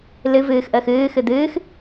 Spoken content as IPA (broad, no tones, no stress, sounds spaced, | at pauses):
l ɨ v ɨː x ʔ əː x ɨː x ɨ d̪ ɨː x